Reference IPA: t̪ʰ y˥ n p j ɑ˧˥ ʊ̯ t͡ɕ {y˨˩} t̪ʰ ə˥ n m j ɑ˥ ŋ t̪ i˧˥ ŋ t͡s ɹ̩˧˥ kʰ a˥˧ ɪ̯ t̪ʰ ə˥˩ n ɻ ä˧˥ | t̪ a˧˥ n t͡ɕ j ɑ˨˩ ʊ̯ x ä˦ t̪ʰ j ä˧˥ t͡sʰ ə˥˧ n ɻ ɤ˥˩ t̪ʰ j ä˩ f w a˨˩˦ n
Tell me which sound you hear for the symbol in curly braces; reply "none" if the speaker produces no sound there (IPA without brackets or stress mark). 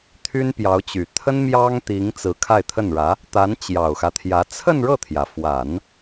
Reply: y˨˩